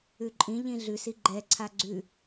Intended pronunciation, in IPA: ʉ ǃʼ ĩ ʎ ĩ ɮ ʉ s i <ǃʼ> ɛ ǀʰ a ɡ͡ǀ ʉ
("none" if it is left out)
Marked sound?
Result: ɡ͡ǃ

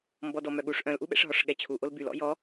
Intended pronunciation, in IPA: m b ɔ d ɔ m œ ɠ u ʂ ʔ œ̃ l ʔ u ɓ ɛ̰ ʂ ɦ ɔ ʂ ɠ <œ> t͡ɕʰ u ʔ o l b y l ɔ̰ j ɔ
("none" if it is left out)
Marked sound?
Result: ɛ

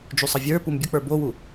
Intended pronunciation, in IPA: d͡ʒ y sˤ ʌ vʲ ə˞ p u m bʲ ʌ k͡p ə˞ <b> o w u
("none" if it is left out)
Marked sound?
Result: b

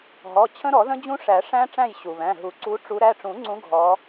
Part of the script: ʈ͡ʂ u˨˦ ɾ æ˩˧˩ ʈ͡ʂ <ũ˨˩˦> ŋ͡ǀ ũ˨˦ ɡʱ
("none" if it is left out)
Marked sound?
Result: ũ˨˩˦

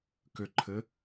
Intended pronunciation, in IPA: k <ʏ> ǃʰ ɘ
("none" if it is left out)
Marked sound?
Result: ʏ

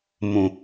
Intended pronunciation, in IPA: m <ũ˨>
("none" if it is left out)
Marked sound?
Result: ũ˨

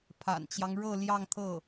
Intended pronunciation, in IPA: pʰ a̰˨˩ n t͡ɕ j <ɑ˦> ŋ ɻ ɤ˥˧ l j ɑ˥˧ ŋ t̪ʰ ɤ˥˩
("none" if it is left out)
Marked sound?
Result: ɑ˦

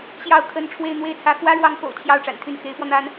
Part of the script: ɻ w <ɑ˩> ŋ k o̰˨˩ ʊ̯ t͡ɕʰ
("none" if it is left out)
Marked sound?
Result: ɑ˧˥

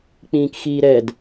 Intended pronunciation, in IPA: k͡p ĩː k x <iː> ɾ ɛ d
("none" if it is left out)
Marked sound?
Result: iː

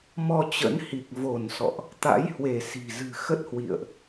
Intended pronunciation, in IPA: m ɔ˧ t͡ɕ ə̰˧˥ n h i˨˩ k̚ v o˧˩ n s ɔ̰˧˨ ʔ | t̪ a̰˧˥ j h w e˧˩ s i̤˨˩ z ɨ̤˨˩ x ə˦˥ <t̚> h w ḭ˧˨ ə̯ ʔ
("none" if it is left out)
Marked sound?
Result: t̚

